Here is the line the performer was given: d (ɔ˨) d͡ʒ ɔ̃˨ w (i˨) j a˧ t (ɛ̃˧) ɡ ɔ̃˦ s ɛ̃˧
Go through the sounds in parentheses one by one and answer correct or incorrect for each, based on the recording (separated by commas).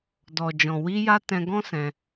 correct, incorrect, correct